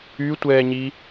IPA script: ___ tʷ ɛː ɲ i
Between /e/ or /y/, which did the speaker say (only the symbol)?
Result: y